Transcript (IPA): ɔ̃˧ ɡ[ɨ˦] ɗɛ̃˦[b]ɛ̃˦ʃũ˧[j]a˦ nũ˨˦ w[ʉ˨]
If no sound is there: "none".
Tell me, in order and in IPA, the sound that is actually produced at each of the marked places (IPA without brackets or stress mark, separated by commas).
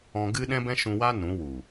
ɨ˦, b, w, u˨